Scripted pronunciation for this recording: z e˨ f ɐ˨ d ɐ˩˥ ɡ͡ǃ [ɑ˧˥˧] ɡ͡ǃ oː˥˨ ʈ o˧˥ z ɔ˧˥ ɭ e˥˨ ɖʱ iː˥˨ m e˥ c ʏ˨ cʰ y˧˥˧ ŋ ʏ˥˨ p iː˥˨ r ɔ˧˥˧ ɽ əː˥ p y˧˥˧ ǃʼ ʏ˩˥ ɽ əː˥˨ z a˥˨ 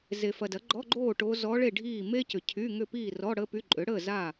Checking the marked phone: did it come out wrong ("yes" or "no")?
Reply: yes